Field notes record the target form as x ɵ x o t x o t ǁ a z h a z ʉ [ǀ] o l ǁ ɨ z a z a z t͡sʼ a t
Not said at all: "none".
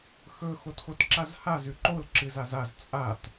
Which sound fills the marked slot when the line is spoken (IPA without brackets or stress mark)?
ǃ